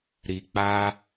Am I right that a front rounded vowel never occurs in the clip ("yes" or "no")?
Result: yes